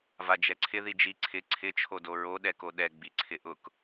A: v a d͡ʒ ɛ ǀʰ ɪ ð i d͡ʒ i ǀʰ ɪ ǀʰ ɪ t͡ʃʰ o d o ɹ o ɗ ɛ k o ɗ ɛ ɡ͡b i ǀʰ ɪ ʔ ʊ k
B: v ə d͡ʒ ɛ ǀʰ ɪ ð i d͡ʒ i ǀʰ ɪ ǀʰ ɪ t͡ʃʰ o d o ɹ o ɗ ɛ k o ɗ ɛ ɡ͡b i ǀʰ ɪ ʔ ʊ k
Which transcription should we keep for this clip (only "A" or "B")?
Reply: A